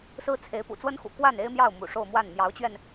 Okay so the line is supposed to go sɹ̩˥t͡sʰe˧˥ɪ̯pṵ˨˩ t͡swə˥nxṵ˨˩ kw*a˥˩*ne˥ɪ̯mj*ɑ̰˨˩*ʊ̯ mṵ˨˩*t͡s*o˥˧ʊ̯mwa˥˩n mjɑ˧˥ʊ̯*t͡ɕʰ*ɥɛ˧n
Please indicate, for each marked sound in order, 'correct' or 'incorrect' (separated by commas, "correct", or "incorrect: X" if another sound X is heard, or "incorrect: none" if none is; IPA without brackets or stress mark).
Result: correct, incorrect: ɑ˥˩, incorrect: ʂ, incorrect: t͡ɕ